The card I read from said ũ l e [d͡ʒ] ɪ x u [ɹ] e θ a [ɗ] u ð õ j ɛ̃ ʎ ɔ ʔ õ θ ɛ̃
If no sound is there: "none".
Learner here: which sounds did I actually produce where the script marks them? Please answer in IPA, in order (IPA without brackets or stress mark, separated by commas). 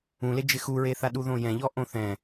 d͡ʒ, ɹ, ɗ